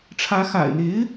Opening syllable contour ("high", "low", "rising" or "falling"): rising